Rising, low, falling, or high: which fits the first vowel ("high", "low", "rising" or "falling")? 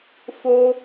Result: high